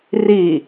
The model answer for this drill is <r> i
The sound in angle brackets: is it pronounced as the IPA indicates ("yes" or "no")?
yes